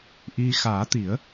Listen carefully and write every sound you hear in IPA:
ʔ i˧ x aː˨˩˦ t̪ i˨˩˦ ə̯

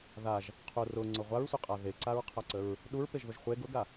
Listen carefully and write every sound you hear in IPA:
ð a ʒ | qʰ ʊ r ʊ ŋ͡ǀ ʊ ʁʷ a ɹ sʷ ə qʼ a ð e ǀ a ɹ qʰ a ǀ ə ɹ | ɗ u ɹ p e ʒ ð ʊ ʒ χʷ e ɡ ʊ ɡ a

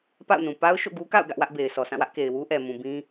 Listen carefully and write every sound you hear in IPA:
p a̰˦˨ ʊ̯ n ũ˨ p a˦ ʊ̯ ʃ o̰˦˨ ɡ u˦ k a̰˦˨ ʊ̯ ɡ ä˦ ʔ w ä˦ ʔ b e˨ ɪ̯ s ɔ˨ s ã˦˨ w ä˦ ʔ k e˨ ɪ̯ w u˦ ʔ ɛ˨ m ũ˨ b ĩ˦

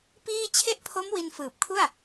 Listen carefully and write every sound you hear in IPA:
p iː˥˩ t͡ɕʰ e˥˩ ʔ pʰ o˦˥ m w i˧ n f ɯː˨˩ p̚ kʰ u˥˩ a̯

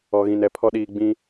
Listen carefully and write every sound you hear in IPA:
ɔ˨ ɣ ĩ˨ n ɛ˨ pʰ ɔ˦ ɗ iː˨ ɡ͡b ĩ˦

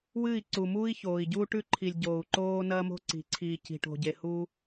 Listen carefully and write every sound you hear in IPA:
w ɨː˦˨ i̯ ǀ u˨ m uː˦ i̯ ç oː˨ i̯ ɟ uː˦ ʈ ʉ˦ ǃʰ i˨ lʲ ɟ oː˨ u̯ ǃ oː˦ n ɐː˦ m o̤˦ ǀ i̤˨ ǀʰ iː˨ c i̤˨ ʈ o̤˨ ɟ e˨ h u˦

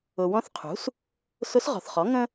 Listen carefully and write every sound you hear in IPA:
ʊ˨ w ɔ̃˧˥ θ qʰ ṳ˩˥ s | s ʊ˧˥ s ʁ ɔ̤˨ θ χ ɔ˩˥ ŋ ə̃˥

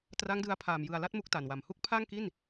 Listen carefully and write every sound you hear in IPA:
t r a˦˥ ŋ d ɯ˧ a̯ pʰ aː˨˩ m j ɯ˨˩ a̯ l a˥˩ t̚ m u˦˥ k̚ t a˨˩ n w a˨˩ m h u˥˩ k̚ pʰ a˥˩ ŋ k i˥˩ n

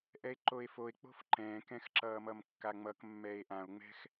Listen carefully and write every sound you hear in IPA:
ʔ ɛ e̯ ǃ o e̯ f o e̯ k͡p o̤ f ǃ ɛ̃ː k ɛ̃ x ǁ ʌː m ʌ m kː a ŋ͡m ʌ k mː ɛ e̯ ʔ ã o̯ ŋ͡m ɛ̤ x

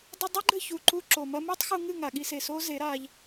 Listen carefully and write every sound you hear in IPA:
dˤ ɨ˧ dˤ ɐ˦ ɡ͡ǃ ɘ˦˨ ç u˨ ǃ u˧ ǁ o˨ m ɐ˦ m u˦ tˤ x u˧ ŋ ɨ˦˨ ŋ a˨ ɠ i˧ s e˨ s oː˦ z e˨˦ ɾ aː˧ ʎ

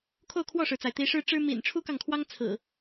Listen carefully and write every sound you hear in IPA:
kʰ o˥˨ ʊ̯ kʰ w ɔ˥˨ ʂ ɻ̩˩ t͡s a˩ ɪ̯ t̪ i˨˦ ʂ ɻ̩˦ ʈ͡ʂ ɻ̩˦ m ḭ˨˩ n ʈ͡ʂʰ u˦ k ɑ˨ ŋ kʰ w ɑ˦ ŋ t͡sʰ ɹ̩˨˩

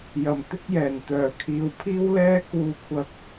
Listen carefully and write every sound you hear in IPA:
j ɐ˨˩ m t̪ ɪ˥ k̚ j ɛː˨˩ n t̪ œː˨˩ kʰ iː˧ w pʰ iː˥ w l ɛː˥ k uː˧ kʷʰ ɐ˧ k̚

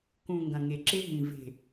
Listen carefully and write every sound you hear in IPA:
k ũ˨ ŋ ɡ ɐ̃˨ ŋ e˨ ǁ e˦ ɦ ĩ˨ v e̤˨

